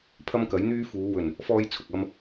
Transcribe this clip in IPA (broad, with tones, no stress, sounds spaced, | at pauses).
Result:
pʰ ɐ˥ m k ɐ˨˥ j n̪ yː˥ f uː˨˧ w ɵ˨˩ n | f ɔː˥ j t͡sʰ ʊ˨ k̚ ɐ˥ m